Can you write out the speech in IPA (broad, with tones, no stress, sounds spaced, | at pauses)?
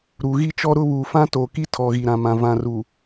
ɾ u˨ ɣ i˦ t͡ʃ ɔ˦ ɾ ʊ˦ β uː˨ f ã˦ t oː˨ k i˦ tʰ ɔ˨ ɣ i˨ ɾ ã˨ m ã˨ v ã˨ r u˨